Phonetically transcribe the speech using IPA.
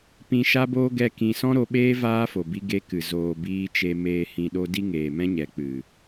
p ĩ˧ ʃ a˦ b oː˦ ɡ ɛ˧ k ĩ˧ s ɔ̃˦ ɾ o˧ ɓ eː˦ v aː˦ f o˨ b i˧ ɡ e˧ k ɨ˨ z oː˨ b iː˧ t͡ʃ e˧ m eː˨ h ĩ˨ ɗ o˧ d i˦ ŋ eː˨ m ɛ̃˦ ɲ ɛ˨ k͡p ɨ˨

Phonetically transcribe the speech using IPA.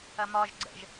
ɐ m ɒ ʒ ɡ͡ǀ ə̰ ʒ

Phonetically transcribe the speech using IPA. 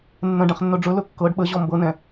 nː ə̃ ɖ ɛ̃ χ nː ɵ ɖ͡ʐ ɵ l ɵ kː ɤ ɖ ɓ ə ʑ ɔ m b ɤ n ɛ̃

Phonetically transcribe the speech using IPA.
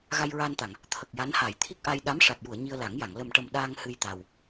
ɣ a˧ j ɹ aː˧ n t̪ a˨˩˨ ŋ | t̪ʰ ə˨˩ k̚ j a˧˥ n h a˨˩˨ j t̪ʰ i˦˥ k̚ ʔ a˧ j ɗ a˧˥ m ʂ a˨˩ t̚ j u˨˩˨ ə̯ ɲ i˧ ə̯ l a˨˩˦ ŋ j a˨˩˨ ŋ l ə˨˩ m ʈ ə˨˩ m ɗ aː˧ ŋ h ɨ˧ j t̪ a˨˩ w

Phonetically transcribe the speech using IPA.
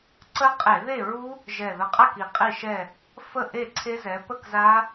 ǀ ə˦˥ qʼ e˧˩˧ ð e˥˨ ɹ u˦˥ | ʒ ɛ˨˩ ð ə˨˦ qʼ a˥˨ k i˨˩ qʼ i˥˨ ʃ ɛ˥˨ | f ə˥˨ ʔ e˥˨ ǀʰ e˦˥ z ɛ˨˦ p ə˥˨ k z a˦˥

